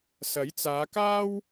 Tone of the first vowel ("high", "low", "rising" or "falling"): rising